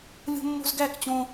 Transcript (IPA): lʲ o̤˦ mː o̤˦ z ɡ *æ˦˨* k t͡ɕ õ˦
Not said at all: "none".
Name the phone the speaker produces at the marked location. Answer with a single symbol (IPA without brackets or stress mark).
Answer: æ˦˨